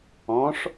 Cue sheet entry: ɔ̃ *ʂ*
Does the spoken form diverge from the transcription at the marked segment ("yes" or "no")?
no